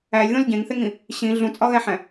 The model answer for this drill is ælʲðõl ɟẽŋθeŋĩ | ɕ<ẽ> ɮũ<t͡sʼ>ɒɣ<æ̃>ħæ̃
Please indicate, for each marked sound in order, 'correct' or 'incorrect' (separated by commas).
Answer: incorrect, correct, incorrect